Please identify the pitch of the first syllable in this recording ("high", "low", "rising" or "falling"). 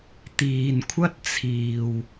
low